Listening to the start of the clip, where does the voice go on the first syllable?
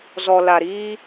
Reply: low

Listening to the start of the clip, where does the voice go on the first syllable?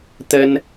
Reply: high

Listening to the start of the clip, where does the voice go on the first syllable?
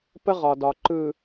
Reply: high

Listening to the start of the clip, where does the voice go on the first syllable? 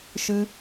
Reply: high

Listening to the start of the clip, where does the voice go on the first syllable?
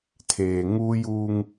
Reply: low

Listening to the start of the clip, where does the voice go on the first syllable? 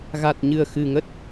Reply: low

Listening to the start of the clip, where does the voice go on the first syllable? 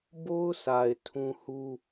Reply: high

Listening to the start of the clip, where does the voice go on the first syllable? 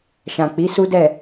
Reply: low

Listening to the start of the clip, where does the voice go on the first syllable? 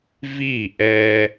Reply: falling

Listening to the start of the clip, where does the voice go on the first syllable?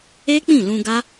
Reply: high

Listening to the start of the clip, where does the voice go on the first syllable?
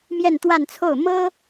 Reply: falling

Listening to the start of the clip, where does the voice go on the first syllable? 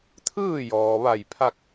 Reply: falling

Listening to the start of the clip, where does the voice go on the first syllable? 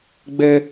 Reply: high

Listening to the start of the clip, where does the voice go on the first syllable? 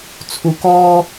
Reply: high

